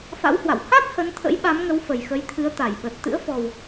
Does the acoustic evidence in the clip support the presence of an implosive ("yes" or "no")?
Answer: yes